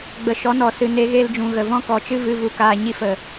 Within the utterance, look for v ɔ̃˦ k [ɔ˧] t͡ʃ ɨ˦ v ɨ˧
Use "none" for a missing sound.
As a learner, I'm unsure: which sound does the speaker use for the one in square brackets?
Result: ɔ˨˦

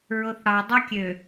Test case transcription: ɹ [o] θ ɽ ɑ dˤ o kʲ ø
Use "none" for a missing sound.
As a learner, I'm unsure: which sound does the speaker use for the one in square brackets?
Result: o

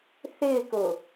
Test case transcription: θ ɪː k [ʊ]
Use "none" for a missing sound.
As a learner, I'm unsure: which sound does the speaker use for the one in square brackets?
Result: ʊ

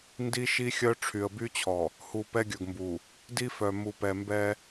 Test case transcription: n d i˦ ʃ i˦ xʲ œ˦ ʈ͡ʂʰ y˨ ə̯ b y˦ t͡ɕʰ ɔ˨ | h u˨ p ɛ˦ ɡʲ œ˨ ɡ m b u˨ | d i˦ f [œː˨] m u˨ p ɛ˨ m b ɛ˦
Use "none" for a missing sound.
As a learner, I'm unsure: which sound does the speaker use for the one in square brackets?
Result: œ˨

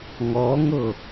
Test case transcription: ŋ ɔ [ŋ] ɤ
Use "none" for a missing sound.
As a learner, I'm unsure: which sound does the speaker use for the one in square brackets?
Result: ŋ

